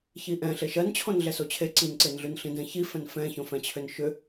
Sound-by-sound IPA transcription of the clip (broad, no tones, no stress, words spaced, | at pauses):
çiʔɛ̃ ɬeʃɜnt͡ɕʰõn ɮɛsot͡ɕʰe ǀinǀenɮʉn ɬĩdɛ̃çifɛ̃n fɛ̃çõfɛ̃t͡ɕʰʏn ʃʏ